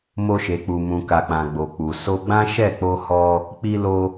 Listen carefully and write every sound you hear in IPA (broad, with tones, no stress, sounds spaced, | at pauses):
m o˧ ʃ e˨ k͡p u˨ m ũ˨ k a˨ k͡p ã˨ ɡ͡b o˨ k͡p u˨ s o˧ ɡ͡b ã˦ ʃ ɛ˦˨ k͡p o˧ h ɔ˧ | k͡p i˧ l o˧